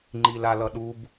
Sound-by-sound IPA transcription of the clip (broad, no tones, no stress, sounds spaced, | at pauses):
ŋ͡ǃ i l a l ʌ ɗ u b